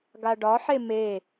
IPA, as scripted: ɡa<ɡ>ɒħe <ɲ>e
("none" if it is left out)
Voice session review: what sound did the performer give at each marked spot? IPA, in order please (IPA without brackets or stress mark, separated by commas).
ɖ, m